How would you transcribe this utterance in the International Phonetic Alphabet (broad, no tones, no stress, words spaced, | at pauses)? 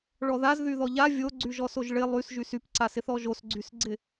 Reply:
ɭɔðaz ðyðɔʎa vʲoɡ͡ǀyʒɔ soʒɭɪ lˠysʒys ypǀasɪθɔ ʒosɡ͡ǀysɡ͡ǀɪ